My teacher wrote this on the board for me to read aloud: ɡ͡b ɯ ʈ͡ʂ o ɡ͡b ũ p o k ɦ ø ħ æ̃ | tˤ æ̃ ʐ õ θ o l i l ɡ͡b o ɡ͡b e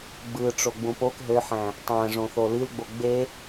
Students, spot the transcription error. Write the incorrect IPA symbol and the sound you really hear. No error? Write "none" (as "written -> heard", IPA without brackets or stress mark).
none